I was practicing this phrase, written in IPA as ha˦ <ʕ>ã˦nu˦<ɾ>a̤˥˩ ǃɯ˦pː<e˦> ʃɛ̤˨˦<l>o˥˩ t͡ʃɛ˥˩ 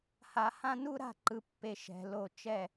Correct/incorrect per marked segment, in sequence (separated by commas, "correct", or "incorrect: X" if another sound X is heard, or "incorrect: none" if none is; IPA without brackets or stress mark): incorrect: h, correct, correct, correct